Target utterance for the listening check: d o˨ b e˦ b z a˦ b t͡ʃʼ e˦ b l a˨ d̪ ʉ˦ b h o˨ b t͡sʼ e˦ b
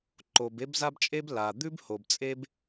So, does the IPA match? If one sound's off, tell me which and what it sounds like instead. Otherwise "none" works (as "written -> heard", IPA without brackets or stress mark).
d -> ǃ